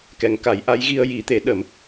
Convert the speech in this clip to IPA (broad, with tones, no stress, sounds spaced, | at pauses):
k ɛ˨˩˦ ŋ k a˨˩˦ j ʔ a˧˥ j ɣ i˧ ə̯ j i˨˩˦ t̪ e˨˩˦ ɗ ə˨˩˦ m